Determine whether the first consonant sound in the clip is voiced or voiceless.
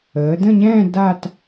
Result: voiced